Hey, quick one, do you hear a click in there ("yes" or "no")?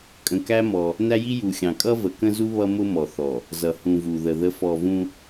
no